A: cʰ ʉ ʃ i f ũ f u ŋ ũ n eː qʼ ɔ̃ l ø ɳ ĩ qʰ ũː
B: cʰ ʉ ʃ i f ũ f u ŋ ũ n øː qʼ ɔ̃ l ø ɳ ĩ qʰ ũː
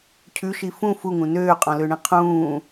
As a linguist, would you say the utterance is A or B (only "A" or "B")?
B